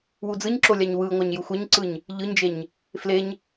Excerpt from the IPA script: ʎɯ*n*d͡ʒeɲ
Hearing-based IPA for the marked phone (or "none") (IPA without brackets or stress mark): ɲ